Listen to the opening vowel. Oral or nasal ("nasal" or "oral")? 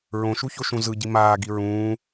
nasal